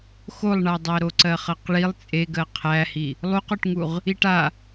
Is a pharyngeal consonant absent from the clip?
yes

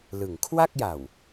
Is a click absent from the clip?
yes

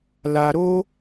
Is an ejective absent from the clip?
yes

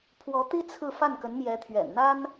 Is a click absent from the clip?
yes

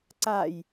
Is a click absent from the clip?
no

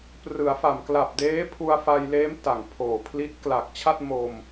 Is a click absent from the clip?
yes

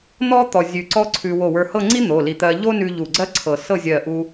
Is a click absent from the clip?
no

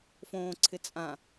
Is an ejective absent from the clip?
no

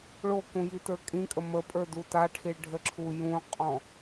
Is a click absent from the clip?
no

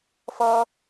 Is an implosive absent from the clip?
yes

